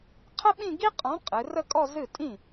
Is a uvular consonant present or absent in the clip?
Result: present